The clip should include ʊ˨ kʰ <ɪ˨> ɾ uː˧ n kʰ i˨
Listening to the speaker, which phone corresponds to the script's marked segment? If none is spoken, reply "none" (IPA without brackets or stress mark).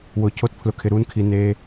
ɪ˨